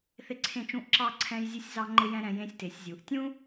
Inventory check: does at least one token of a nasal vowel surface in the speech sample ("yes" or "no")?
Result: yes